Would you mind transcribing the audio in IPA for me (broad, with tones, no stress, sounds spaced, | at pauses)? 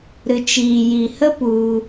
ɾ ɨ˨ t͡ʃ iː˨ j i˨ h ə˦ p u˧